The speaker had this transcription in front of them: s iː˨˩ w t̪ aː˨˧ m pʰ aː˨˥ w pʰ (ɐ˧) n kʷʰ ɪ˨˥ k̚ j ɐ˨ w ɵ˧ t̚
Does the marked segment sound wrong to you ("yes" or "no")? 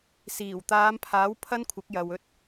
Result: yes